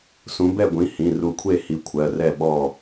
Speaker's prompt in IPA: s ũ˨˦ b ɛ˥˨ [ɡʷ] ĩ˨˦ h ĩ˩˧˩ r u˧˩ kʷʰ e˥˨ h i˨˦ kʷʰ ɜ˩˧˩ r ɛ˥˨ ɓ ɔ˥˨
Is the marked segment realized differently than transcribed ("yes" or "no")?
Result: no